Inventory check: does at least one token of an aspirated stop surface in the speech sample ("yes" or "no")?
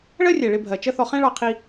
yes